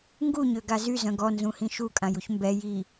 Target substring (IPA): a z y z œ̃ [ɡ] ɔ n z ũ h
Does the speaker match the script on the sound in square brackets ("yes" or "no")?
yes